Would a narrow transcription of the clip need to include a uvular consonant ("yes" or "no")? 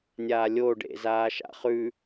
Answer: yes